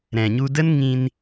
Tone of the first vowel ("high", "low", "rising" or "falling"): low